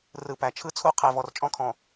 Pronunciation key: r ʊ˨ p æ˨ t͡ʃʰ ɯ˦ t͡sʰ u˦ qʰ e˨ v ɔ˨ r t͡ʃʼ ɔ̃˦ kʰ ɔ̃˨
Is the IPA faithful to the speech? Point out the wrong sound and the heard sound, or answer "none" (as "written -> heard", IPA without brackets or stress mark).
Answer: ʊ˨ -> ɯ˨